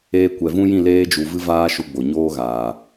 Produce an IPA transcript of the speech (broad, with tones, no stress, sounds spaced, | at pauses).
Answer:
eː˧ kʷ ɛ˨ v ũ˦ j ĩ˦˨ l eː˧ d͡ʒ u˨ v ɨ˦ v aː˦ ʃ u˧ ɡ͡b o˨ ɲ oː˦ ɣ aː˨